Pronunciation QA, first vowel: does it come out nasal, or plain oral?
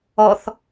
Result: oral